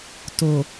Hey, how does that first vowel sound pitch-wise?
low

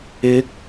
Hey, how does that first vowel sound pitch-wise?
rising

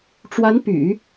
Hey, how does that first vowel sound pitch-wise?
rising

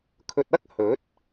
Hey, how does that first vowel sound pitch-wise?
low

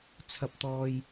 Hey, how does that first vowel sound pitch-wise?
high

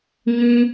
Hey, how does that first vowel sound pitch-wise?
low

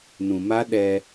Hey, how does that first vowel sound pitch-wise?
low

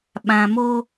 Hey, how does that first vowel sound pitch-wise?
low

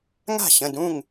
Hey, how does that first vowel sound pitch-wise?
falling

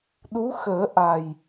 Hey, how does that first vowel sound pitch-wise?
rising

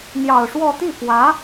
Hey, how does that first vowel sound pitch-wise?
low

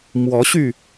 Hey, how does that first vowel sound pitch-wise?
rising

